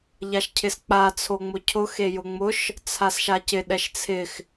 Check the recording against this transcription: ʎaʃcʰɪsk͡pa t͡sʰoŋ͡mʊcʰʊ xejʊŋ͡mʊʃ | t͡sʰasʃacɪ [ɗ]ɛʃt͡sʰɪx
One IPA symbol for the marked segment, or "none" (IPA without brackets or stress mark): ɗ